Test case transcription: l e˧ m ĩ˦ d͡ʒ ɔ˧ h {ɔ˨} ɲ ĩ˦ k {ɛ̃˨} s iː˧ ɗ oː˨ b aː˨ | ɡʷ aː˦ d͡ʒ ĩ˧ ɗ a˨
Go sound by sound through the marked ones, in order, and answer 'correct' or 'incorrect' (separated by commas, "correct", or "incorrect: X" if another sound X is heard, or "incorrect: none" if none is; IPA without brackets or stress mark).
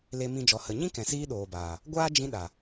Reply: incorrect: ə˨, correct